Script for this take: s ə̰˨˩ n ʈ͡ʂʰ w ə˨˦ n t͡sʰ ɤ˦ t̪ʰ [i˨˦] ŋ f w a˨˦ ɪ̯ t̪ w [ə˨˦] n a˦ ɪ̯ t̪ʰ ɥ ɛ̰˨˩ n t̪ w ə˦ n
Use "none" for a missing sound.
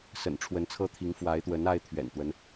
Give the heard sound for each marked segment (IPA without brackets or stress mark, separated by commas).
i˨˦, ə˨˦